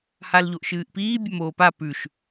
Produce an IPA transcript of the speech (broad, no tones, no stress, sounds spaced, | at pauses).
h a l ʎ o ʔ ʃ ɨː ʔ p iː bʲ ɐ m oː p a p ʉ ʃ